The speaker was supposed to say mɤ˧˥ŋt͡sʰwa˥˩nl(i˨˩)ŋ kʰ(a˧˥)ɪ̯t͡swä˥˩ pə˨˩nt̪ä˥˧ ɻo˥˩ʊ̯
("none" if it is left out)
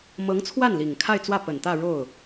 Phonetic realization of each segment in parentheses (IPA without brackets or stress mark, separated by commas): i˨˩, a˥˧